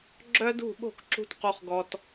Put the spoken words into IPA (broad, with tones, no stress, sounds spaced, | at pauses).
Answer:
ɡ͡ǁ œ˦ d ṳ˦˨ ɓ o̤˦˨ k ǁ ṳ˧ t q u˨ χ ɡ ɔ˨ t